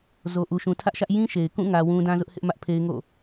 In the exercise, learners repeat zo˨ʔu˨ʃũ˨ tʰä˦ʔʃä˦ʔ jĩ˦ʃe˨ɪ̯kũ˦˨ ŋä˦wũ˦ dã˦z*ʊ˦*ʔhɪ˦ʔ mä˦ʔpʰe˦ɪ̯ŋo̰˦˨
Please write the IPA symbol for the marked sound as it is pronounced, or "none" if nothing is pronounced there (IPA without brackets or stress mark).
ʊ˦